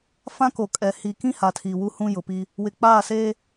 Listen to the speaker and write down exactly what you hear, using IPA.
f ã˦ k o˨ kʼ ɛ˨ h i˨ k ĩ˦ h a˨ tʰ iː˨ w u˦ h ũ˦ j ʊ˨ p i˦ | w ɪ˨ k͡p aː˦˨ s eː˦

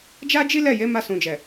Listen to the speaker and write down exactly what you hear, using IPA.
d͡ʒ a˦ d͡ʒ i˦ l ɛ˦˨ j e˨˦ m a˧ s ũ˨ d͡ʒ ɛ˨

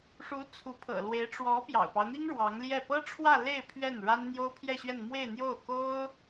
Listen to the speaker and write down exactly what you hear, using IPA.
ʂ u˧˥ t͡sʰ u˧˥ pʰ ɤ̰˨˩ l w e˧˥ ɪ̯ ʈ͡ʂ w ɔ˧˥ p j ɑ̰˨˩ ʊ̯ p ɑ˦ ʊ̯ n̪ i˥ ŋ ɻ w ɑ˧˥ ŋ l j ɛ˥˩ p ɤ˥ ʈ͡ʂʰ w ä˥˧ l e˥˧ ɪ̯ pʰ ɥ ɛ˥˩ n ɻ a˥ n n̪ j o˥ ʊ̯ pʰ j ɛ˥˧ ɕ ɥ ɛ˥˧ n m w e˥˧ ɪ̯ n̪ j o˥˩ ʊ̯ k o˥ ʊ̯

